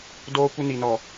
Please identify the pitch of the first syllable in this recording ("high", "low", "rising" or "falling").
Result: high